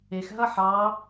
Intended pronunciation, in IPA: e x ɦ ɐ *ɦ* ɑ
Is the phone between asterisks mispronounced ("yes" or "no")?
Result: yes